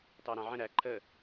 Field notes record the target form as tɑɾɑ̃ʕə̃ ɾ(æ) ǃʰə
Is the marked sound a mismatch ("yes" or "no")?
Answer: no